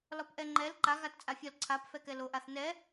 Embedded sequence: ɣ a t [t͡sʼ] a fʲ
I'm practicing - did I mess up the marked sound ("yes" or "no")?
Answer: no